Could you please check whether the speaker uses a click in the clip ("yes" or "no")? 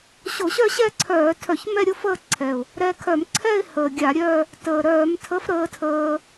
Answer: yes